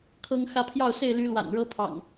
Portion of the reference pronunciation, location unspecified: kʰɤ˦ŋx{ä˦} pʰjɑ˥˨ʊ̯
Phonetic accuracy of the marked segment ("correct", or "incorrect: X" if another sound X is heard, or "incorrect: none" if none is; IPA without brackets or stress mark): correct